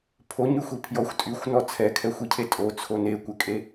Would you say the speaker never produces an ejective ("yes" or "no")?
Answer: no